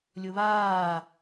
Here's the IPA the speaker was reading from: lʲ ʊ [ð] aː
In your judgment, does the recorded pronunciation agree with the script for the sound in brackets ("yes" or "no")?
no